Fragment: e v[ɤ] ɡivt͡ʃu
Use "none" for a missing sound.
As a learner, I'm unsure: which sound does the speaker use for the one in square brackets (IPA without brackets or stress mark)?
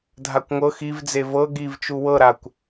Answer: ɤ